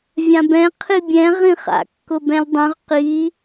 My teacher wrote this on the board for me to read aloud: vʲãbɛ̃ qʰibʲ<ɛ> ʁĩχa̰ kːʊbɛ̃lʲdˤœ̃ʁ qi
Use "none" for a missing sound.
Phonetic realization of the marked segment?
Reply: ɛ̃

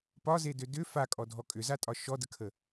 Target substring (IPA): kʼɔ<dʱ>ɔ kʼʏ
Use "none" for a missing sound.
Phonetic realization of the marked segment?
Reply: dʱ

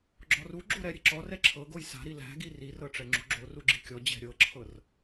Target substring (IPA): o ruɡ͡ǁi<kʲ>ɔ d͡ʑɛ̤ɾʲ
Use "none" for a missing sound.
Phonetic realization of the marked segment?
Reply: kʲ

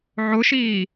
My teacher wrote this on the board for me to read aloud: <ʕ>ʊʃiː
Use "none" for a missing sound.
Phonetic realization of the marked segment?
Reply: ʕ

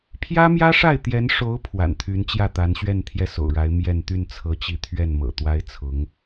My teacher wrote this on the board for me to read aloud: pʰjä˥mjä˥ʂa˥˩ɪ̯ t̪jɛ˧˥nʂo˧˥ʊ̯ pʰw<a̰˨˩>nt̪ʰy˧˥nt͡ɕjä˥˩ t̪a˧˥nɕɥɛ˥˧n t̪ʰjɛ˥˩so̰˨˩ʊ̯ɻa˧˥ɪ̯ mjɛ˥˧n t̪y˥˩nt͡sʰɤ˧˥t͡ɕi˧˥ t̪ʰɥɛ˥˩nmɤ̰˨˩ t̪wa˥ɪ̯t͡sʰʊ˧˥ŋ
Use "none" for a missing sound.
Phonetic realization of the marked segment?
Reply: a̰˨˩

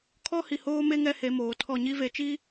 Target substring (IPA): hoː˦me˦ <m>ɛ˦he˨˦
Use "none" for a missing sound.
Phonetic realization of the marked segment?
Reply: ŋ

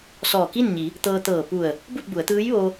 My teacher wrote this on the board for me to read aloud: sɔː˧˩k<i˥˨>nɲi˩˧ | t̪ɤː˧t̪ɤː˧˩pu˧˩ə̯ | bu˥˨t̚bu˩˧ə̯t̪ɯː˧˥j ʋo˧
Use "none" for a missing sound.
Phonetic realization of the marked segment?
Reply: i˥˨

